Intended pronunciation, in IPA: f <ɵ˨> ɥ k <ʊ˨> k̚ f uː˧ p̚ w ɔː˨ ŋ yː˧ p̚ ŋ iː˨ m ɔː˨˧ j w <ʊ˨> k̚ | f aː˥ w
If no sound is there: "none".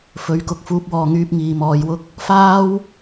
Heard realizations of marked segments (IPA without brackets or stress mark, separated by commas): ɵ˨˥, ʊ˨, ʊ˥